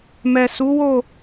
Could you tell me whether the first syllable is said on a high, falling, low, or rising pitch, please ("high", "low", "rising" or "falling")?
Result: low